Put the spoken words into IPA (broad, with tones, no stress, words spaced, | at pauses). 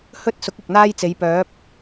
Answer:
hɵ˥t̚sʊ˨˥k̚ ɪ˨k̚n̪aː˥jt͡se˨˧jpœː˨˥p̚